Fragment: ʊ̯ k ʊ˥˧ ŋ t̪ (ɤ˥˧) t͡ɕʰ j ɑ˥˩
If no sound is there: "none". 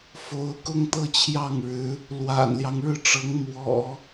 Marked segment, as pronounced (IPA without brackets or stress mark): ɤ˥˧